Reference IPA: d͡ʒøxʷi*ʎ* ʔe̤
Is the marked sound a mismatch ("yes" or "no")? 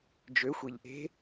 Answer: no